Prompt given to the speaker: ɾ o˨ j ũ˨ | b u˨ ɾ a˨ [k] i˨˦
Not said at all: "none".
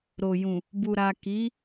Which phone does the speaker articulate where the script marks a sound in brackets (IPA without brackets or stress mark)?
k